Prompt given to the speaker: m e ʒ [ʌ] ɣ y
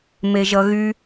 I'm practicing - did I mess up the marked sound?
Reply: no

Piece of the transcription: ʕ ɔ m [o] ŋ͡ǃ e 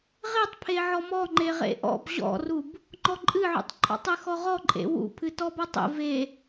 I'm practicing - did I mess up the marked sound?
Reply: yes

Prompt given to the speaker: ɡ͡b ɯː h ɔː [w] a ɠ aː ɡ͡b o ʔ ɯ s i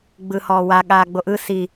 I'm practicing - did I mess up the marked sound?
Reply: no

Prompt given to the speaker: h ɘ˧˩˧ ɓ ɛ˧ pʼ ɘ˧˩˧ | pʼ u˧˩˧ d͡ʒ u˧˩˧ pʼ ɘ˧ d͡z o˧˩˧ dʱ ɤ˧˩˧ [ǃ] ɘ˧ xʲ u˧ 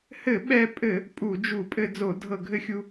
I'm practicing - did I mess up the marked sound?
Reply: yes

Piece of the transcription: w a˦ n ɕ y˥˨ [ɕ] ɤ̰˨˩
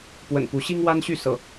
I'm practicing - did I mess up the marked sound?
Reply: yes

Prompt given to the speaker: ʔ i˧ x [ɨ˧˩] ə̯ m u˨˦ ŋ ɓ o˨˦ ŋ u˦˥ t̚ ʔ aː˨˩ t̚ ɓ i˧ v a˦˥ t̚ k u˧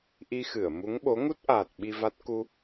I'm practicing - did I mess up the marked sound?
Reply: no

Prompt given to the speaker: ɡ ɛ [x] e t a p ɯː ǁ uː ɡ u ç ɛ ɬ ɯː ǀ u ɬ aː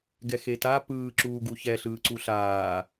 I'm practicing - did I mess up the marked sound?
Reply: no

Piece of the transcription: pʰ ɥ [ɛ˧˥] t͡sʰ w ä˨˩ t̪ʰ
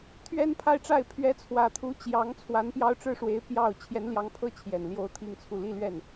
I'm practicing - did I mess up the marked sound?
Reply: no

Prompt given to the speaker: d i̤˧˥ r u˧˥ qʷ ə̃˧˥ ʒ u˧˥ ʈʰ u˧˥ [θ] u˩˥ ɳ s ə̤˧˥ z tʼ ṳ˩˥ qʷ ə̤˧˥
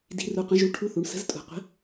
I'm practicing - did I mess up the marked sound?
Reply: no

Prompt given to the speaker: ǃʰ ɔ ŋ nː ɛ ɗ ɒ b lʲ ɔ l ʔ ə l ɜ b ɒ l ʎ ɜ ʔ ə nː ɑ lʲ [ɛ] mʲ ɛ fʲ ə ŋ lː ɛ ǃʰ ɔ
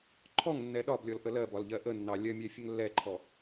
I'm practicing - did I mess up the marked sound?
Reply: yes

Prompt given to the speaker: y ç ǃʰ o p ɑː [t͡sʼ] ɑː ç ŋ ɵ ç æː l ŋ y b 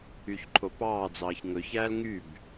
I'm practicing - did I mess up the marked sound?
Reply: yes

